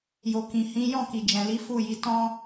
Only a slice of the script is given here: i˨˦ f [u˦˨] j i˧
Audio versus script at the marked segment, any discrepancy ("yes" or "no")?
no